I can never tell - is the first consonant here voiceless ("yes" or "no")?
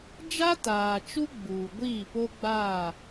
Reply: no